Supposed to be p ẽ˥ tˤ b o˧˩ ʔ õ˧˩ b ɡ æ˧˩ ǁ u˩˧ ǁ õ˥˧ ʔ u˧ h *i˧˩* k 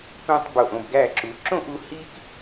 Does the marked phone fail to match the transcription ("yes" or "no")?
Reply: yes